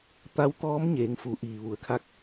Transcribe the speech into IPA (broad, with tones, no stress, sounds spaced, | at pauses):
t̪ a˧˥ w t̪ ɔː˧˥ m ɲ eː˩˧ ŋ f u˩˧ ʔ iː˩ ʋ u˩˧ ə̯ kʰ a˧ k̚